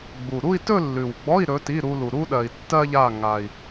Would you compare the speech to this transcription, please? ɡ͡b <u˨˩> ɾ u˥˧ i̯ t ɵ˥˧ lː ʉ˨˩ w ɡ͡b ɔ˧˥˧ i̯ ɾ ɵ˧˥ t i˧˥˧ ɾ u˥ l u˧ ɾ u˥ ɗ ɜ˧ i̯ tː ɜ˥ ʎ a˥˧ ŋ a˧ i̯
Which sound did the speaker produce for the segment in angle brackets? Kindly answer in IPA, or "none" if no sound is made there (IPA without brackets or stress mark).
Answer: u˨˩